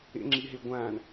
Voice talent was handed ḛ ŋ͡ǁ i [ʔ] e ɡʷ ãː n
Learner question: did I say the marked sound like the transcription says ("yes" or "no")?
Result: no